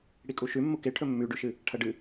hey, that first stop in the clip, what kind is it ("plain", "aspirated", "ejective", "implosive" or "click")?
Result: ejective